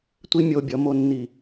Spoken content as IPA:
tʷ i˦ mʲ o˧ bʲ ʌ˨˦ m o˦ nː i˦˨

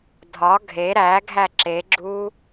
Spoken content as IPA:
dʱ ɒ ɡʱ e ɾ æ ɡʱ æ ǁ e ɡ͡ǁ uː

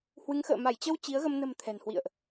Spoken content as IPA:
h w ɨ˨˦ ŋ x ə̰ː˧˨ m a˧˩ j t͡ɕ ə˧ w t͡ɕ i˨˦ ə̯ ɣ ə˧ m n ə̤˨˩ m t̪ʰ ɛ̤˨˩ n h w ḭ˧˨ ə̯ ʔ

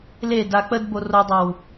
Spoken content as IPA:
l e d a k͡p ə d b o r o dˤ ɑ w

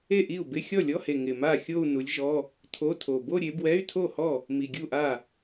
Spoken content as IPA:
e˥˩ ʔ i˥˩ u̯ b ɪ˧˥˧ xʲ ɔ˥˩ lʲ ɔ˧˥˧ h e˨˩ ŋ ɪ˨˩ m a˥˩ xʲ o˥˧ u̯ n u˨˦ lʲ ʒ ɔ˧˥˧ | tʰ o˧˥˧ tʰ o˨˩ b o˥˧ ɾʲ e˨˦ b w ɛ˧˥˧ y̯ tʰ o˥˩ h ɔ˥˩ | m i˨˩ ɡʲ u˥˩ ʔ a˥˩

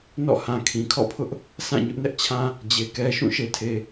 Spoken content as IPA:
n ɔ̰˦˨ h ã˨ kʰ ĩ˨ kʰ ɔ̰˦˨ pʰ ʊ˦ ʔ | s ã˦˨ ɲ ʊ˦ ʔ n ɛ˦ ʔ t͡ɕʰ ã˦ | d͡ʑ e˨ k ɛ˦ ʃ ũ˦˨ ʃ e˨ tʰ e˨

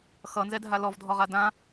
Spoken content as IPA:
x ʌ n z ɛ dʱ a l ɔ v dʱ ɔ ʁ a d ã

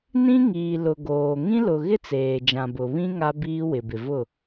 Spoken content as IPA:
n ĩ˦ ŋ iː˨ l ʊ˨ ɡ oː˨ ŋ ĩ˦ l ʊ˨ ɣ ɪ˦ t͡s eː˨ d͡ʒ ã˨ b ʊ˨ β ĩ˦ ŋ a˦ b iː˦ w ɪ˨ b ɪ˨ v ʊ˦˨

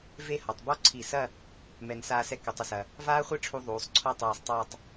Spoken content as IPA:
v e˥˧ h ɔ˩˧ tˤ b ɔ˥˧ ǀʰ i˧˩ s ɐ˥˧ | m ɛ˧ n s aː˥˧ s ɛ˥ k ɐ˩˧ tˤ ɐ˧ s ɐ˧ | v aː˥ χʷ e˥ ʈ͡ʂʰ u˧ ðˤ uː˩˧ sˤ ǀʰ ɔ˥ tˤ aː˧ sˤ tˤ ɐː˥˧ tˤ

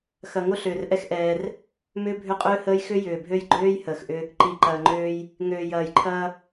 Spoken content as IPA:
x ɐ˨ ŋ o˦ ɬ ʏː˨ r ʔ ɛ˦ x ʔ ɛː˦ r | m ʏː˦ bʱ ʏ˦ qʼ ʏː˦ h əː˦ j x ʏ˦ j ʏː˨ bʱ ø˦ j ɡ͡ǃ øː˦ j h əː˨ x ʔ ʏ˦ | ǃ i˨ ǃ ɐː˨ ŋ͡ǃ øː˦ j | ŋ øː˨ j ɐː˨ j ǃʰ ɐː˦

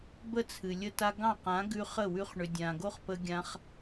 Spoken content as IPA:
b ə˦ t͡sʰ ɨ˨ lʲ ə˦ t a˦ ɡ ɑ̃˦˨ q ã˨˦ ɡ ʉ˧ χ ə˦˨ w ʉ˧ χ ɳ ʏ˨ dʲ ã˨ ɡ o˦ χ p ə˧ ɡʲ ã˧ χ

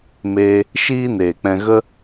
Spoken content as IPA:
m eː˧ | ʃ iː˦ n eː˨ k͡p ɛ̃˧ ɣ ə˦

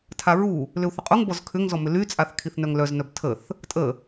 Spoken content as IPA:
tʰ a ɹ u | l ʏ u̯ θ ə qʼ u ŋ b ɔ z kʰ ʏ ŋ z ɔ m ʏ l y t͡sʼ a θ kʰ i θ n œ ŋ l œ z n œ b tʰ ə θ | tʼ ə

